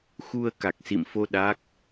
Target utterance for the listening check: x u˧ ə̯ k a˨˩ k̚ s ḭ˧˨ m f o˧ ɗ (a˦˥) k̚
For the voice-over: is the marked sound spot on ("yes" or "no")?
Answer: yes